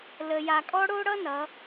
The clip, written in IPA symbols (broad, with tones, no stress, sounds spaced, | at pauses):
l ə˧ j a˧ kʼ ɔ˥ ɽ o˥ ɽ ʌ˥ n ʌ˩˧